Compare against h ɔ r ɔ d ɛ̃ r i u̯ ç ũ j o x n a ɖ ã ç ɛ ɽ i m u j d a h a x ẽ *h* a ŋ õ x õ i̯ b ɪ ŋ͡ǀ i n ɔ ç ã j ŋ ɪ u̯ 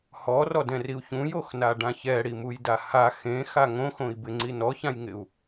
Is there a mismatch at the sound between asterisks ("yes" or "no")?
yes